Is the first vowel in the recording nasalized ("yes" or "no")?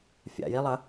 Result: no